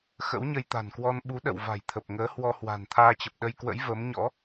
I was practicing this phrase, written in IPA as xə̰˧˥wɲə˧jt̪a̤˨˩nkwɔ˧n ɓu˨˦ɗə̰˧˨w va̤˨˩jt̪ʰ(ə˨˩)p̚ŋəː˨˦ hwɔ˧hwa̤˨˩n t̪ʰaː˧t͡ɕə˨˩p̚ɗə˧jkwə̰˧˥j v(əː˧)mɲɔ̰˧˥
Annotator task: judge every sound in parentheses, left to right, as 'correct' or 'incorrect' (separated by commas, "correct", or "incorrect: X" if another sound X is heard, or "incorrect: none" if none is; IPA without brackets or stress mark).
correct, incorrect: əː˨˦